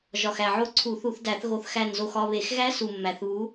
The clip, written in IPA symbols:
ʒ ɒ˨˩ x æ˨˩ ʕ o˦˨ ǀʰ u˧˩˧ θ u˧˩˧ θ d æ˧˩˧ θ ɣ o˨˦ θ x æ˦˨ n z o˦˨ x ɒ˦˨ β e˧˩˧ x ɣ æ˦˥ s u˨˩ mː æ˨˩ θ β u˨˦

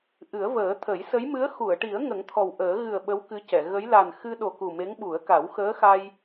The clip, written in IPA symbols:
ʔ ɨ˨˩˦ ə̯ v əː˨˩˦ t̪ʰ ə˨˩˦ j s ə˧˥ j m ɨ˧˥ ə̯ x u˨˩˨ ə̯ ʈ i˨˩˦ ə̯ ŋ ə˨˩˦ ŋ t̪ʰ ɔ˨˩ w ʔ əː˨˩˦ ɣ ɨ˨˩ ə̯ ɓ ə˧˥ w k ɨ˧˥ c ɛ˨˩˨ ɣ ə˧˥ j l a˨˩ n x ɨ˧ ɗ o˨˩ k u˨˩ m e˧˥ ŋ ɓ u˨˩˦ ə̯ k a˨˩˦ w x əː˧˥ x a˧ j

